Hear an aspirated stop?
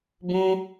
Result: no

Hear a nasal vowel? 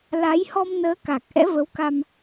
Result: no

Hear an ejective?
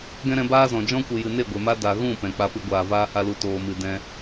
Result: no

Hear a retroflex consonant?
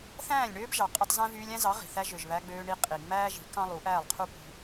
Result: yes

